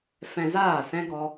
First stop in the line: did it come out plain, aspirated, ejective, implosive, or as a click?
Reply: plain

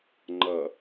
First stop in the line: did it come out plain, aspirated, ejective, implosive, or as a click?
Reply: click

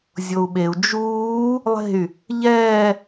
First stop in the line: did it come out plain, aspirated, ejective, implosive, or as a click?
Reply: implosive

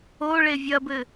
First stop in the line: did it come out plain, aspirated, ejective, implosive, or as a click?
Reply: plain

